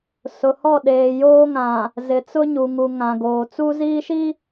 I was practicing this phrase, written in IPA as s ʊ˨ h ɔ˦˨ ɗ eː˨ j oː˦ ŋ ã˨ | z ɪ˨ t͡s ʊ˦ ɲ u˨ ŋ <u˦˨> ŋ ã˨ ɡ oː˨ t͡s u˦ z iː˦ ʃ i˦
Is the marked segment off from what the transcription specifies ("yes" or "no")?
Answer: yes